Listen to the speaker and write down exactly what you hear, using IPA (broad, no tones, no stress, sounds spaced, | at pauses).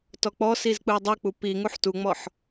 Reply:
t ɔ k͡p ɔ s i z k͡p ɯ ə̯ dˤ u k͡p u p i ŋ u ħ t u ŋ͡m ɔ ħ